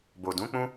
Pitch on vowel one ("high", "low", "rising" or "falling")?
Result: low